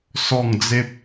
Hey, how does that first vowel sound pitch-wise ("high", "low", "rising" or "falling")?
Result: falling